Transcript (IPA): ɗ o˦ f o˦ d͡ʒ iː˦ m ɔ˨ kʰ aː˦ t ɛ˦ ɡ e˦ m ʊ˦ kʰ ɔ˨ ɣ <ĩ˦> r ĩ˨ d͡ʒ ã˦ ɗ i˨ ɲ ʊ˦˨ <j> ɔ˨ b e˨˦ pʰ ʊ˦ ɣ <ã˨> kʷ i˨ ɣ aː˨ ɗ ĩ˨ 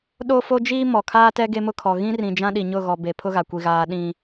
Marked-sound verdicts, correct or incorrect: correct, incorrect, incorrect

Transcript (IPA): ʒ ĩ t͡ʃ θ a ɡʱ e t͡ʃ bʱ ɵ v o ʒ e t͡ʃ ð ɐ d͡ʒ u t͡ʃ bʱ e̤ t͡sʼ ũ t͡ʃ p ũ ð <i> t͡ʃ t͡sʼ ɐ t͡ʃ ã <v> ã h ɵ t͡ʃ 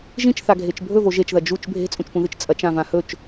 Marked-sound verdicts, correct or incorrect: incorrect, correct

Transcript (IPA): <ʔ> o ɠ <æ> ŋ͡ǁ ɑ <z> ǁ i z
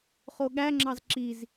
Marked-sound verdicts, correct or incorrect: incorrect, correct, correct

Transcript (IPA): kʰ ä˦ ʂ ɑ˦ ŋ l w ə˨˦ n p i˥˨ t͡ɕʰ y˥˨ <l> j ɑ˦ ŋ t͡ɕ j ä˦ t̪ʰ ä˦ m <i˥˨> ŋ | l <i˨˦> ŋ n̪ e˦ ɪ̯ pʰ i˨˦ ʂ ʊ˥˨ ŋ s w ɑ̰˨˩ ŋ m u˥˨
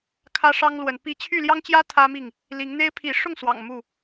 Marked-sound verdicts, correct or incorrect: correct, correct, correct

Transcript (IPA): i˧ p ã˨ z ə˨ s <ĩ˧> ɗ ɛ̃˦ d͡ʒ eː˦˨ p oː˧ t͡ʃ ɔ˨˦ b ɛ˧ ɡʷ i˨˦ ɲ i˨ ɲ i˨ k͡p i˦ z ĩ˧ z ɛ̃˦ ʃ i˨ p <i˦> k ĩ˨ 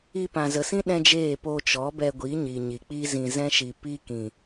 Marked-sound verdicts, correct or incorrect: incorrect, correct

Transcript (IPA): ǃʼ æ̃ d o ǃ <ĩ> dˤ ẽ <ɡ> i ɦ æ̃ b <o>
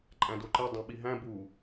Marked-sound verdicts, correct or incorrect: incorrect, incorrect, incorrect

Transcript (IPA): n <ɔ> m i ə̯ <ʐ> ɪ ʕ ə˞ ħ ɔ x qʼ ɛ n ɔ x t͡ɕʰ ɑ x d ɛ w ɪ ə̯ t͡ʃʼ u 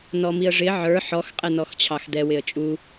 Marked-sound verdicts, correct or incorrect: correct, correct

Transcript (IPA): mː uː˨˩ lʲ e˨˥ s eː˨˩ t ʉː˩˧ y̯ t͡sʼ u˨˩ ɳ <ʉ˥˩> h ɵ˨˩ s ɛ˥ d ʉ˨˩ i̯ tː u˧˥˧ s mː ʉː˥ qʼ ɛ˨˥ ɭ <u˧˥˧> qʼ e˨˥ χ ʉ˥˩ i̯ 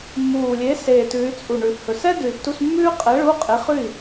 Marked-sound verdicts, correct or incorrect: incorrect, correct

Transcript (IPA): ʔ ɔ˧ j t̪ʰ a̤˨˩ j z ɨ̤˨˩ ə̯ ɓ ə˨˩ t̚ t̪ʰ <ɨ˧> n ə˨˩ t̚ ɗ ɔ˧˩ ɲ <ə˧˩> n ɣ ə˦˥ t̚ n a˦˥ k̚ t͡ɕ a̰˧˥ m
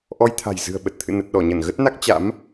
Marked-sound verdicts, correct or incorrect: incorrect, correct

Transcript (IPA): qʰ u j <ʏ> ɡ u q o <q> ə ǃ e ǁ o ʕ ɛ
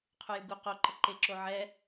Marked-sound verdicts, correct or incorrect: incorrect, incorrect

